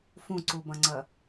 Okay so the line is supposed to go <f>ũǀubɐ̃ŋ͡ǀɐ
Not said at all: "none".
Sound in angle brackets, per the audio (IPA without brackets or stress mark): f